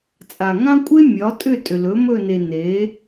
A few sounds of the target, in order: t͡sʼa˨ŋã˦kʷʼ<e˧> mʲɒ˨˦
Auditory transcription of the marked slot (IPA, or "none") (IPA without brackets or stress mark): e˦